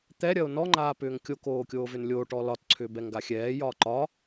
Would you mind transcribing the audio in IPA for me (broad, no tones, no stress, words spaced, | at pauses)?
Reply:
t̪ɛ ɾʲɐo̯nɔ ŋ͡ǃaːpʏːŋkʲo koːkʲoːvʏnlʲoː ʈɔlɒt ǀʰʏːbɛŋɡaxʲɛː jɒːǃɒ